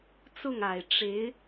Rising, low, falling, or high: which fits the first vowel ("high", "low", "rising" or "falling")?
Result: falling